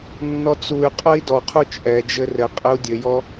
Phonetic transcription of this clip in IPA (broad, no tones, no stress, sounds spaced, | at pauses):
nː ɔ t͡s u y̯ qʼ ɐ i̯ d ɔ qʰ u t͡ʃʼ ɛ d͡ʒ ɘ r ɘ qʼ ɘ u̯ dʲ ɘ j ɔ